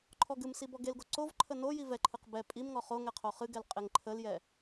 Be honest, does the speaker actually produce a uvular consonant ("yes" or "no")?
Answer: yes